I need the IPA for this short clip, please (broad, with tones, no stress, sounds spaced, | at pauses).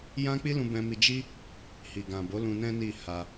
j ã˦ k͡p i˦ l ũ˧ b ɛ̃˧ m i˧ d͡ʒ i˦ | h i˨ ɡ ã˨ b o˨˦ l ũ˧ n ɛ̃˦ n i˦˨ h a˧